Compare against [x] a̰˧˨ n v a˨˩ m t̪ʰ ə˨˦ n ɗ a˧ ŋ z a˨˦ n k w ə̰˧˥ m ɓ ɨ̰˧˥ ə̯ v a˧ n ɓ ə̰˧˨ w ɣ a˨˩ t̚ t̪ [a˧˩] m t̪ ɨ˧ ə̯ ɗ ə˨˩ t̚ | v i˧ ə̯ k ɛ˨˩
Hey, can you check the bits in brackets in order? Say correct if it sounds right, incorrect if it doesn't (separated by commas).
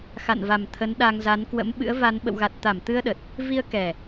correct, correct